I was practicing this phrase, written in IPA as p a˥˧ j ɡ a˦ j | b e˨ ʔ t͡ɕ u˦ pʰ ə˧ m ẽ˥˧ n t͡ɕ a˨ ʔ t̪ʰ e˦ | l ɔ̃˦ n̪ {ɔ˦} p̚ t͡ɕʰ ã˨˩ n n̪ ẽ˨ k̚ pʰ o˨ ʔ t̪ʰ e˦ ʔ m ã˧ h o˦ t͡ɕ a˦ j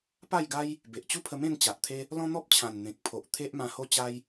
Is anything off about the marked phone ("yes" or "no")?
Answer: no